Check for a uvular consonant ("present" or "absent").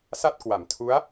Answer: absent